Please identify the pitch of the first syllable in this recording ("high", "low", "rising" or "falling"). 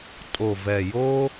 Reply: low